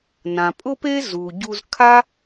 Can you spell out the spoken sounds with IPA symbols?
n ã˩ pʼ ʊ˥ p e˥ z u˩ ɟ u˧ z kʰ a˥

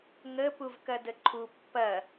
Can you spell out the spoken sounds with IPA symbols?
ŋ ə p u v k ɐ d ə ǃʰ u pː ɐ

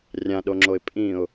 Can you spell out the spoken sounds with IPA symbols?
rʲ ã ɗ o ŋ͡ǁ o ɪ̯ pʼ ĩ ʊ̯

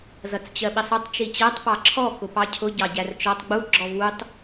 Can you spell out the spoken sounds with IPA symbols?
z ʌ t͡s t͡ɕ ɜ ɓ ɪ sˤ ʊ tˤ t͡ʃ i t͡ɕ æ tˤ p ɑ ǁʰ ɔ k ʊ p ɑ cʰ ʊ ɟ ɑ ɟ æ r t͡ʃ ɔ tˤ ɡ͡b u ɡ͡ǁ ɔ v u tˤ

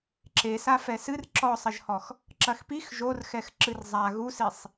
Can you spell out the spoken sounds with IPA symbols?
ǁ e s a f ɛ s ɨ r ǁ ɔ sˤ ɐ ʒ h ɔ x | ǁ ɐ x p i x ʒ o r x ɛ x ǁ ɨ r zˤ a ɣ u s i sˤ

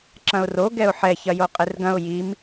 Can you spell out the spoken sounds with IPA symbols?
ǁ ɐ̃ ʊ̯ r o ɡ ɛ ʊ̯ ħ ɛ ç ɐ j o qʼ e r ɡ ɐ̃ ʊ̯ j i m

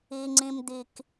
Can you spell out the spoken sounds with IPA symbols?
i˨ ŋ͡ǀ ĩ˨ m d̪ i˨ k

